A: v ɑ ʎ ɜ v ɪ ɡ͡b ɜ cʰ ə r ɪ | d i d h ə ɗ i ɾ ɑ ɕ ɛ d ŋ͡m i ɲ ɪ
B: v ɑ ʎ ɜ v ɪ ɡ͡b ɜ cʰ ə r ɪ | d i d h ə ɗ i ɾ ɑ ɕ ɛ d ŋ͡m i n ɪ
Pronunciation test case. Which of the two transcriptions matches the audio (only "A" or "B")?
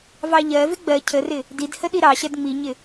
A